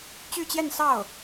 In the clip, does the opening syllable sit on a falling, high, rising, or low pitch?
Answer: falling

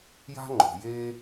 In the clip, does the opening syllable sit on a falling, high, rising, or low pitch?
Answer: high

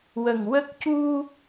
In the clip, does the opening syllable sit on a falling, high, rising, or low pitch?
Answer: low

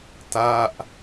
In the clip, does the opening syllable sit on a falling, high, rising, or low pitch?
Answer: falling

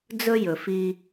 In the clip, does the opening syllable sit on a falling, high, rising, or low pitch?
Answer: high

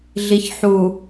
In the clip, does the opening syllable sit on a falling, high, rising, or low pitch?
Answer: low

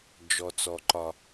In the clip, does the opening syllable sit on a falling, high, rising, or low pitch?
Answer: low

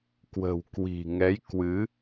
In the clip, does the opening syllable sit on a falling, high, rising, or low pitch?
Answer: low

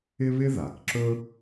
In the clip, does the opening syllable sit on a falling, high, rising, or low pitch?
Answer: high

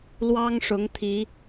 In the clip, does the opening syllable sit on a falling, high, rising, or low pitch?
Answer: high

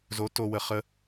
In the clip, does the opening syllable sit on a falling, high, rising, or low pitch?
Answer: rising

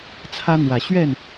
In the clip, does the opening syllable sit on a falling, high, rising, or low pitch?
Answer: high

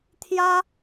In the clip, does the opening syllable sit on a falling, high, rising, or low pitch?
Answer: high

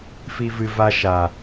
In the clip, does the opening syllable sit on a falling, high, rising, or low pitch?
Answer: high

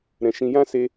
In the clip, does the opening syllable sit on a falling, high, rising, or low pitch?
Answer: low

